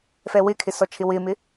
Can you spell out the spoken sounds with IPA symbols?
fɛwɪkʰɪ sɔt͡ʃʰɪwɪmɪ

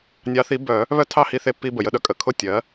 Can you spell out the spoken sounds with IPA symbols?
nʲɑ˧˥θi˧˥ bœ˨˩˦ | βœ˥˧tʰɑ˥˧hi˧ θe˧pːi˧ bə˩jə˧ɗœ˧ kʼə˩kʰʊ˥˧ tʲɜ˩˥

